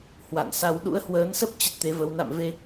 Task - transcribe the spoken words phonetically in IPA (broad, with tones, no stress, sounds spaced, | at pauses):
h w a̰˧˨ n s a˧ w ɗ ṵ˧˥ ə̯ h w əː˨˦ n s ə˦˥ p̚ t͡ɕ ə˦˥ t̚ t̪ e˨˦ v ə˨˦ w n a̰˧˨ m v e˧